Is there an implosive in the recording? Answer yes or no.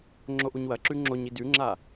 no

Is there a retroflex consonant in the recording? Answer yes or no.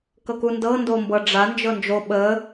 yes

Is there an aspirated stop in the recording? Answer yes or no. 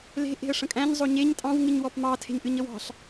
yes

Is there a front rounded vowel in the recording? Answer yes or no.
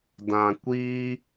no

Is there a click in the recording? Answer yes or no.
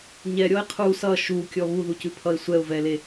no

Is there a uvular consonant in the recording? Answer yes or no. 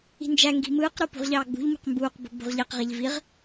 yes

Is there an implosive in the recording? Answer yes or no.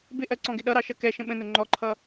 yes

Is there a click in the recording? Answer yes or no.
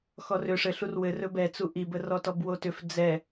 no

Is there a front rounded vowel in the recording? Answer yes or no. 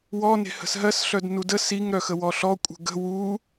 yes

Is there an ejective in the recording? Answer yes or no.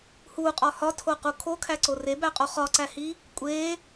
yes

